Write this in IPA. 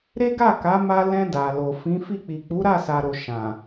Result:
ɾ e˦ ɡ a˦˨ k a˨˦ m a˧ l ɛ̃˧ d a˨ l o˨ f ĩ˨˦ f i˦˨ k͡p i˨ k͡p u˨˦ ɾ a˦˨ s a˨ ɾ o˨ ʃ ã˨

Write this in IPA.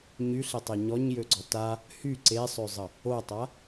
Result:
ɲ y ɬ e tˤ ɛ ɲ ɔ ɲ j ø ɡ͡ǀ ɔ t a | h y ǀ e sˤ ø zˤ ə | o tˤ a

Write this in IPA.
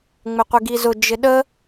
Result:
ŋ͡m ɪ qʷ i ɡ i z ʊ d͡ʒ ɪ ɗ ə

